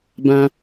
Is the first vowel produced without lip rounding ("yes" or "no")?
yes